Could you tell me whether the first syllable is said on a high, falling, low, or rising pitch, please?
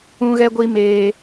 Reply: high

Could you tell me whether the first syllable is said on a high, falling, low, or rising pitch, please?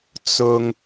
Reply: low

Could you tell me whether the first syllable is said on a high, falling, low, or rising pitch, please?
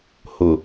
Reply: low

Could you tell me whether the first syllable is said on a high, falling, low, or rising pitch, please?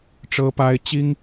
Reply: high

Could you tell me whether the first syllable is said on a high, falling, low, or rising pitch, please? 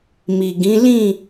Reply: low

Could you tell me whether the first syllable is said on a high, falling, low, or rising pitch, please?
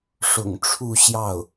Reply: low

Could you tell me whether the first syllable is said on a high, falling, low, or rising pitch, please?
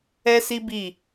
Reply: high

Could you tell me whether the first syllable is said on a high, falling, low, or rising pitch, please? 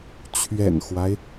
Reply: low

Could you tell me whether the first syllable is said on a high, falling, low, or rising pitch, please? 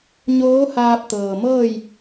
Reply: rising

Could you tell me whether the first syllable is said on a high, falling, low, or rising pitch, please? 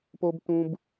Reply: high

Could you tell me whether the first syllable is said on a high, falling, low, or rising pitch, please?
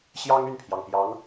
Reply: high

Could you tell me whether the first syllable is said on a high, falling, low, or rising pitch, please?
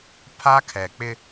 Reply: high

